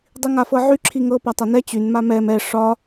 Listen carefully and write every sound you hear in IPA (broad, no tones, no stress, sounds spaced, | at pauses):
dˤ i ŋ a f ɤ ʕ y ǁʰ i ŋ ɤ p a tˤ a n ɛ t͡ɕ y n m a m ɛ m ɛ ʂ ɒ